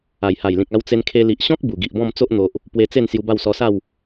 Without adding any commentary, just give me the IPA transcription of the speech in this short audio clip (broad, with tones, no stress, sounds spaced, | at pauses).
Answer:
a˨˩ j h a˨˩ j l ĩ˨ k̚ a˧ w t͡s e˧ n kʰ e˧ l i˨ ʔ ɕ ɔ̃˦ k̚ b u˨˩ ɡ i˨ ʔ b ɔ̃˥˧ m t͡s o˦ ʔ n̪ o˨ ʔ | p w e˧ t͡s e˥˧ n s j u˧ b a˥˧ w s ɔ˧ s a˥˧ w